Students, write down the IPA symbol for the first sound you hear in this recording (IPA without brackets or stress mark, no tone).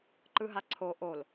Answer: ǃ